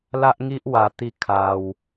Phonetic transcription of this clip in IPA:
l a˦ ʔ ŋ i˦ ʔ w a˧ t̪ i˥˧ kʰ a˧ w

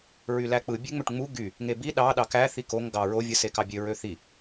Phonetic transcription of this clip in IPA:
ɹ y l æ k͡p ɯ bʲ e ŋ͡m ø ʈ ŋ͡m u ɡ y | ŋ e b i ɗ ɑ ɗ ɑ k æ θ i k o ŋ ɡ ɑ ɹ o vʲ ɯ s e k ɑ bʲ ø ɹ ø θ i

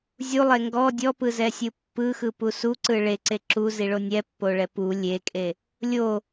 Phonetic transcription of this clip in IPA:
zʲ u lˠ e ŋ ɡ ɔ dʲ ɔ p ɯ z ɛ sʲ ɯ pː ɯ x ɯ p u s u ǀ ɯ ɭ e ǀ e ǁ u z i ɭ o nʲ ɛ pː o ɭ ɛ p u lʲ e kʼ e | lʲ o

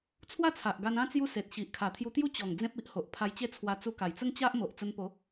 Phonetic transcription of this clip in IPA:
t͡sʰ w a˥˧ t͡sʰ a˨ ʔ ɡ a˧ n ã˦ t͡s j u˦ s e˨ t̚ ɕ i˨ ʔ kʰ a˨˩ t̪ʰ j u˧ t̪ j u˦ t͡ɕ ɔ˨˩ ŋ d͡z ẽ˦ p̚ i˦ ʔ h o˨ ʔ pʰ a˧ j t͡ɕ e˦ t͡sʰ w a˧ t͡s u˧ k a˨˩ j t͡s ə˦ ŋ t͡ɕ a˦ ʔ m o˨ ʔ t͡s ə˧ n p o˨˦

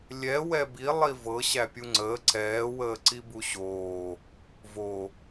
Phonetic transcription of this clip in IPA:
lʲ ɛ w ɛ b i lˠ i v ɤ ɕ æ pʲ u ŋ͡ǀ əː ǀ ɛː w əː ǀ i b u ɕ oː | v o

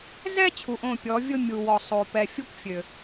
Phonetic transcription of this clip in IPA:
z ɛ˦ t͡ɕʰ u˨ ʔ õ˦˨ pʲ ɔ˨˦ vʲ ʊ˦ mʲ u˨ w ɔ˨ sˤ o˨ p ɛ˨ fʲ u˦ kʷ fʲ ø˨

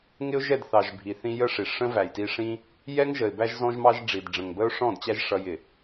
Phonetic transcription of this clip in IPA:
ŋ ɪ˦ ʊ̯ ʒ ɛ˦˨ d θ ɑ˨ ʒ bʱ i˨ θ ĩ˧ j ə˦ ʂ i˨ ʂ ə̃˦ v æ˨ j t i˧ ʂ ĩ˦ | j ɛ˦ ŋ ʒ ə˨ ɪ̯ b æ˧ ʒ z ɔ̃˧ ʒ m ɑ˧ ʒ ɖ͡ʐ i˨ d ɖ͡ʐ ə̃˨ ŋ b ə˦ ʊ̯ ʂ ɔ̃˦˨ d t͡ɕ æ˦ ʒ ʂ ʌ˧ j ɪ˨

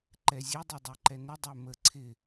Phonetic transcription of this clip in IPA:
ǃ ɛ zʲ e dˤ e dˤ ɛ ǃ ɛ n ɪ dˤ ɛ m ə ǀʰ ɪ

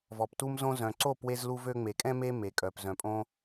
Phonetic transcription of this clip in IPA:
v ɔ˨ p t u˦ m z õ˦ z œ̃˨ ǀ o˦˨ p w e˧ z l u˧ v ø˧ ŋ͡m e˨ kʼ ɛ̃˦ m e˦ m e˨ kʼ œ˨ p z œ̃˨ pʼ õ˦

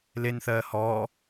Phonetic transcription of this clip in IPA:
l e n θ ɜː h ɔː

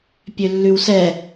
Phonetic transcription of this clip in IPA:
pʲ ø lː ʉ w s ɛ

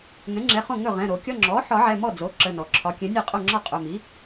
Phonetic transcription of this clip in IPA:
ŋ ɛ̃˩˥ ŋ͡ǁ ɛ˩˧˩ χ õ˥˩ ŋ ɵ˥˩ ʁ ɛ̃˩˧˩ ɾ o˨˩˦ kʲ ɒ˧˥˧ ŋ͡ǁ ɔ˩˥ ħ ɒ˨˩˦ ʕ ɛ˩˧˩ m ɔ˥˩ d͡z o˩˥ ǁ ə˩˧˩ n ɔ˩ ǁʰ ɒ˩˥ kʲ ɛ̃˩˥ nʲ ɛ˥˩ qʼ o˥˩ ŋ͡ǁ ɒ˥˩ qʼ ɵ˩˧˩ m i˩˥

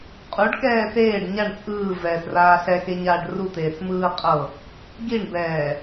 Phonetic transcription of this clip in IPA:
qʼ u ɖ k ɛː s eː ɖ ɲ a ɳ t͡sʼ ɯː v ɛː s r aː ɬ ɛ x e ɲ aː ɖ r u t̪ eː s m ɯː qʼ ɤ | ɡ i ɳ b ɛː

